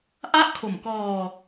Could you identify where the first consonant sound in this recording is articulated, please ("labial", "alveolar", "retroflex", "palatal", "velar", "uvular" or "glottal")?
glottal